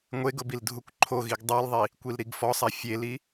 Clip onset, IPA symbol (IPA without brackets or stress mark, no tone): ŋʷ